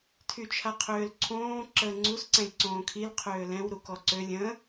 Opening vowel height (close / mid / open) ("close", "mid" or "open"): close